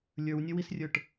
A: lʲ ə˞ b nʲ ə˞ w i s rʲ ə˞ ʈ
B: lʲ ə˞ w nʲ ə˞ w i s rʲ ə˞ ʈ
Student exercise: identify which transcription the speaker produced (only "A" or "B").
B